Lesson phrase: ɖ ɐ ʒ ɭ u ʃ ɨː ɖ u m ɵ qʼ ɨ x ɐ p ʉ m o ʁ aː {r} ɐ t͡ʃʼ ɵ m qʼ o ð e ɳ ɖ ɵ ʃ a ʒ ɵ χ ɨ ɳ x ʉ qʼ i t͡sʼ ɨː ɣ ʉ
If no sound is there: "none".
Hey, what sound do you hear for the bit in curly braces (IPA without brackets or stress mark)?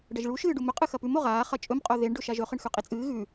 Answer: χ